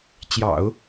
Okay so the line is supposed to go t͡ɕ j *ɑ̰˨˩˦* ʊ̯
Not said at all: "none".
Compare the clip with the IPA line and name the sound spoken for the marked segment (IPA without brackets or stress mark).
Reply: ɑ̰˨˩˦